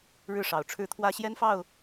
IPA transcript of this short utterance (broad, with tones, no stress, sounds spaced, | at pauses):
ɻ ɻ̩˥˨ ʂ ɑ˨˩ ʊ̯ ʈ͡ʂʰ ɻ̩˥˨ t̪ʰ w ä˦ ɕ j ɛ˦ n f ɑ˥˨ ʊ̯